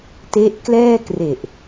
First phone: t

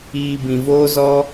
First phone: iː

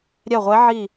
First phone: ɾʲ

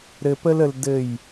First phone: ɾ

